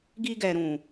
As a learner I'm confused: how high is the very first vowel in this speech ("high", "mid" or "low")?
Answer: high